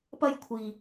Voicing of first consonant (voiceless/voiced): voiceless